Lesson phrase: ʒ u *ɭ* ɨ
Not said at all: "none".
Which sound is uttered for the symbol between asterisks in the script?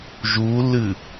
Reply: l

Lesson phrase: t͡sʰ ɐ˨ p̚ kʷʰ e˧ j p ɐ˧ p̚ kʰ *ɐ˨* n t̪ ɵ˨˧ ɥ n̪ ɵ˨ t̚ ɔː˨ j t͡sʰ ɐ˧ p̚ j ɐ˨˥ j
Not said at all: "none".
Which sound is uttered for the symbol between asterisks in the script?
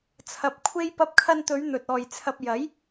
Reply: ɐ˧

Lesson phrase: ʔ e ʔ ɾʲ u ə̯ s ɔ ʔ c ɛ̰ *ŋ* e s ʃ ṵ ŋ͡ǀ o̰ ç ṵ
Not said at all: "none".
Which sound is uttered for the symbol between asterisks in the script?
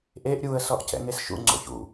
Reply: ŋ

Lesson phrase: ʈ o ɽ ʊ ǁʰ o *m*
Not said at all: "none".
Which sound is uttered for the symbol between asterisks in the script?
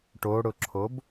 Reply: b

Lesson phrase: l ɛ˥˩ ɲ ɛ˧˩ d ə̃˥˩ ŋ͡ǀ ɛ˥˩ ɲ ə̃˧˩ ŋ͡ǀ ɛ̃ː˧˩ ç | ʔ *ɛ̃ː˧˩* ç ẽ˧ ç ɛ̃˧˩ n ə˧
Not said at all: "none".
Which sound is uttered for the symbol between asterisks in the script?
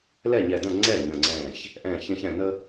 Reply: ɛ̃ː˧˩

